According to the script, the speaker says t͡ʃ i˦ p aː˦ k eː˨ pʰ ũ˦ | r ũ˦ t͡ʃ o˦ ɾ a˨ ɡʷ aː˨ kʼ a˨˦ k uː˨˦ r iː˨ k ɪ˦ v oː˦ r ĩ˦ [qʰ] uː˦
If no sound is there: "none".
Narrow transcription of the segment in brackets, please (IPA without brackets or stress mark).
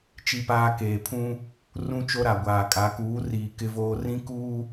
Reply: k